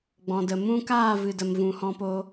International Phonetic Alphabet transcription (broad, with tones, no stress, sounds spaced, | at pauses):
ɡ͡b ɔ̃˨ d ə˨ m ũ˦ k aː˦˨ v ɨ˨ d ə˨ m v ũ˨ h ɔ̃˧ p o˧